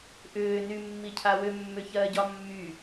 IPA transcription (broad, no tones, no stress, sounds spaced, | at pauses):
ʔ ʏː n y mː i cʰ a w ʏ mː ʏ ç ɜː ɟ ɒ mː y